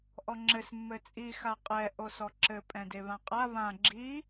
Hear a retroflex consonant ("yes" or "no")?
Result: no